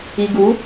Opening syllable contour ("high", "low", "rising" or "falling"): low